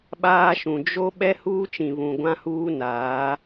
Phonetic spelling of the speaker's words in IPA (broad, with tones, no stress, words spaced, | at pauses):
ɓaː˦ʃũ˨ d͡ʒo˦ ɓɛ˦huː˦t͡ʃĩ˨ βũ˨ɡʷã˦huː˦naː˨˦